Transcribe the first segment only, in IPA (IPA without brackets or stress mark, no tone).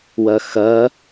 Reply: w